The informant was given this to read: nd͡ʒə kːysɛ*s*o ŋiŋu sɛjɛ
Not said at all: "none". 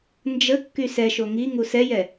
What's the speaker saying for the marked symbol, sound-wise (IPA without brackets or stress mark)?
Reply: ʃ